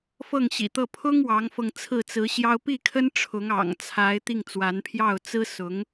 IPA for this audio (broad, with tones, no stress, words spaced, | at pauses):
fɤ˥˩ŋɕḭ˨˩t̪ɤ˥˩ pʰʊ˥ŋ wɑ˧˥ŋfɤ˧ŋ t͡sʰɹ̩˥˩t͡sɹ̩˧˥ɕjɑ˥ʊ̯ pi˥˩kʰə˥n ʈ͡ʂʰʊ˧˥ŋɑ̰˨˩ŋt͡sʰa˧˥ɪ̯ t̪i˥˩ŋt͡swa˧˥npʰjɑ˥˩ʊ̯ t͡sɹ̩˥sʊ˧˥ŋ